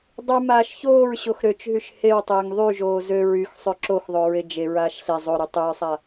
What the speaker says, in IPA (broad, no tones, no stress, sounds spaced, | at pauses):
dˤ y m aː ʃ ç oː ɹ ɕ o x ɾ ø t͡ʃ ɦ y ʃ h e w tˤ eː ŋ ðˤ y ʒ oː z ø ɹ y x sˤ ø ǁ o x ðˤ o ɹ e d͡ʒ e ɹ aː ʃ ɬ e zˤ o ɾ y tˤ ɵ ɹ sˤ a